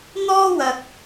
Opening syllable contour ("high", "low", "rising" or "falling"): high